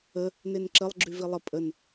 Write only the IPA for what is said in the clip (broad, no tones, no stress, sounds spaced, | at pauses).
ə | n e n ǁ ə lˠ ɡ͡ǁ y v i lˠ ə pʼ ə n